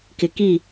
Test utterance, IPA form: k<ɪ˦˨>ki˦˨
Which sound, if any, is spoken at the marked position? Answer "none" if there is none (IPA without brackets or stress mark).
ɪ˨